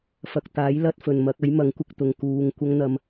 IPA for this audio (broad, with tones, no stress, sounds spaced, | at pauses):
f ɐ˨ k̚ t̪ aː˨˥ j l ɐ˧ t̚ f ɵ˨ n m ɐ˨˥ k̚ ɐ˨˥ j m ɐ˨˥ ŋ kʷ ɪ˧ k̚ t̪ ʊ˨ ŋ k uː˨ ŋ kʷ ɐ˥ ŋ n̪ ɐ˧ m